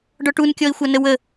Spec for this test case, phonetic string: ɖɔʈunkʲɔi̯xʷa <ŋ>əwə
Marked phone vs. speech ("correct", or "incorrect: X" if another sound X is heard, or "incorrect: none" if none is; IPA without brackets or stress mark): incorrect: n